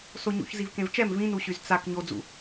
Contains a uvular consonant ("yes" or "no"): no